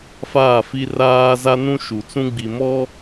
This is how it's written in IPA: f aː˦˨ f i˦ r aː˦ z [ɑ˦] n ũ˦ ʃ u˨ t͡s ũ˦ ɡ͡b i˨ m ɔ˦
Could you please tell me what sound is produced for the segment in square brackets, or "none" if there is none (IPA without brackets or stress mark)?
a˦